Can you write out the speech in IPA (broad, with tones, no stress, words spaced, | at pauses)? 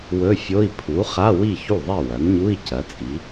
wɵ˧˥˧fʲo˧˥˧i̯ pʰu˩˥ χa˧˥˧ wi˥˩çu˥˩ðˤi˥˩ wɐ˩˥nɲu˧˥˧i̯ cɐ˩˥t͡sʼi˩˥